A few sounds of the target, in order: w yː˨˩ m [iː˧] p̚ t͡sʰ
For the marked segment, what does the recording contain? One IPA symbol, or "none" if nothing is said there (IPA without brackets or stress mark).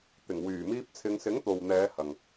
iː˧